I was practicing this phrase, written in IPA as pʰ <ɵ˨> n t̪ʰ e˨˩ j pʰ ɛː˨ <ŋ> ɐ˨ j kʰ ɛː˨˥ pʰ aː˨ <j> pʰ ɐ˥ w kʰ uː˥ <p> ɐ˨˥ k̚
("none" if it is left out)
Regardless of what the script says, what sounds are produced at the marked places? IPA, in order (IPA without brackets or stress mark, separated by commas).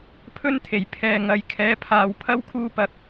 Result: ɵ˥, ŋ, w, p